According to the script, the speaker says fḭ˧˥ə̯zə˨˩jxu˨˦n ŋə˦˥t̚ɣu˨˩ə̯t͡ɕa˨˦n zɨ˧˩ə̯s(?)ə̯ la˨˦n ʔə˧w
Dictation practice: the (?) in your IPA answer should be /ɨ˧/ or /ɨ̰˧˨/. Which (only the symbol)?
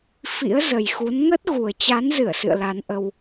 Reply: ɨ̰˧˨